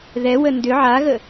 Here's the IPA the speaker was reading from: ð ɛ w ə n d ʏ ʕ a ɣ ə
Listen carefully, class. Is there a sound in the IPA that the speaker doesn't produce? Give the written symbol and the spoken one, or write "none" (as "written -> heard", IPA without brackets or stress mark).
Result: none